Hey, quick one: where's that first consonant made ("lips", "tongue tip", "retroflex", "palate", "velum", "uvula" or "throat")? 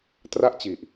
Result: tongue tip